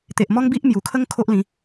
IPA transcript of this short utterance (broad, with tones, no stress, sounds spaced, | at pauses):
t̪ e˨ ʔ m ɔ˦ ŋ b i˦ ʔ m j u˨˩ kʰ ə˦ ŋ kʰ o˦ ʔ l ĩ˨˦